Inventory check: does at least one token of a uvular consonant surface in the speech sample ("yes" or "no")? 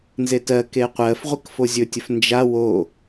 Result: yes